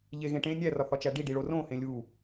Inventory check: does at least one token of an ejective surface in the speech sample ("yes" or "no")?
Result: no